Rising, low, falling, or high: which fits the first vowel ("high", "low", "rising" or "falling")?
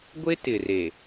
high